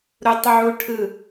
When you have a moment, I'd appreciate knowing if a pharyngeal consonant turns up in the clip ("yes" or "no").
yes